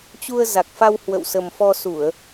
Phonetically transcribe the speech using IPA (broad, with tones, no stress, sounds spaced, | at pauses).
t͡ɕ u˧ ə̯ z a˨˩ k̚ f a˧ w h w ə̰˧˨ w s ə˨˩ m f ɔ˧ s u˧˩˨ ə̯